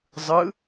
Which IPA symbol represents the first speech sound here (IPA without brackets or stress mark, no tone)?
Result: zˤ